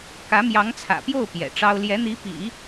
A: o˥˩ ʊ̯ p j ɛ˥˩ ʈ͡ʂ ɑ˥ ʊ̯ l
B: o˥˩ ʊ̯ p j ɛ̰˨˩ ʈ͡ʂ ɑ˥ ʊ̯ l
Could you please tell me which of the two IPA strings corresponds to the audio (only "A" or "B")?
B